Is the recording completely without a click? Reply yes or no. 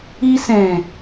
yes